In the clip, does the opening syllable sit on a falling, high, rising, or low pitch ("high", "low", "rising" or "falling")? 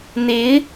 rising